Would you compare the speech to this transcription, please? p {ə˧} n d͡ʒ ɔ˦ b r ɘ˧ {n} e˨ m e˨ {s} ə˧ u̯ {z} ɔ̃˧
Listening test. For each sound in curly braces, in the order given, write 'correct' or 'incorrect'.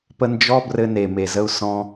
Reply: correct, correct, incorrect, incorrect

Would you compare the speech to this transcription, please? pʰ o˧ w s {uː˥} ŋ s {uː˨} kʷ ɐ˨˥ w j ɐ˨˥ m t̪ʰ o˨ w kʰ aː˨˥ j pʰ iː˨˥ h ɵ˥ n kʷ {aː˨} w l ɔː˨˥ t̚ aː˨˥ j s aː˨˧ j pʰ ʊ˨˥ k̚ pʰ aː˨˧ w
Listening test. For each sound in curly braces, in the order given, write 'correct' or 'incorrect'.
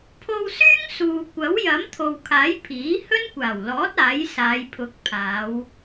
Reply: incorrect, correct, incorrect

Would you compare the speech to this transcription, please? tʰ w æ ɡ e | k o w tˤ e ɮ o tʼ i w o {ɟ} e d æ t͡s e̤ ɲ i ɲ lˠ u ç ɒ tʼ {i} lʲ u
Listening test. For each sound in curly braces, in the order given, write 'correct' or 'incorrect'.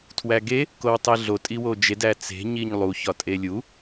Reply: incorrect, incorrect

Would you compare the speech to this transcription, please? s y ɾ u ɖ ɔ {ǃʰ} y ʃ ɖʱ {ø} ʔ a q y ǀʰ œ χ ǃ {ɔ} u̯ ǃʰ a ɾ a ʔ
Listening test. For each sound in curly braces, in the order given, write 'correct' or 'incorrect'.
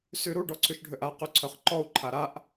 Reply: incorrect, correct, correct

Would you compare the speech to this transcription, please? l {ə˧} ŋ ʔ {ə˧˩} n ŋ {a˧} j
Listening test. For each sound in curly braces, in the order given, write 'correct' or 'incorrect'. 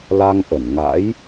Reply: incorrect, correct, incorrect

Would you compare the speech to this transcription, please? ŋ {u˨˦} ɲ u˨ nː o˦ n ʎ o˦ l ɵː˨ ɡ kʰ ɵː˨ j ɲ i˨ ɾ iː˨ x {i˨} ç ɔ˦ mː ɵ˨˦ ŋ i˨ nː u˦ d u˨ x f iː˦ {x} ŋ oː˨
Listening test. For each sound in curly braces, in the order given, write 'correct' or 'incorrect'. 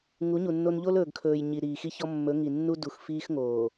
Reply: correct, incorrect, correct

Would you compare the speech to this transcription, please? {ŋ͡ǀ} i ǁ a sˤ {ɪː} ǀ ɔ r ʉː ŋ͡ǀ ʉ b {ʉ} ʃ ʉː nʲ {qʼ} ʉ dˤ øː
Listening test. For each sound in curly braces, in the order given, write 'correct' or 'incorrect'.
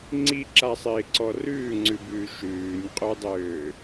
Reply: correct, correct, incorrect, correct

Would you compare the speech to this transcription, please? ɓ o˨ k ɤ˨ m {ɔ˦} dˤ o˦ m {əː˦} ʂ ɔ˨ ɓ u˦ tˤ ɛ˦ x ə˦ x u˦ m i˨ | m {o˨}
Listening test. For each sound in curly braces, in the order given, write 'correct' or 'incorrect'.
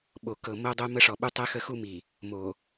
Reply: incorrect, incorrect, correct

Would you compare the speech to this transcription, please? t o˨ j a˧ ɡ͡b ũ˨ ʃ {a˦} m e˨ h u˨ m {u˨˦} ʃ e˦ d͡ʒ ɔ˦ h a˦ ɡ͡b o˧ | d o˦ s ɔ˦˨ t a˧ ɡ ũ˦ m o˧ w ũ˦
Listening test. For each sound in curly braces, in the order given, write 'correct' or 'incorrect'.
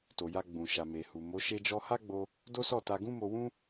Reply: incorrect, incorrect

